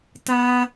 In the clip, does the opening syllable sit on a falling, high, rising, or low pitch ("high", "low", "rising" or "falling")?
high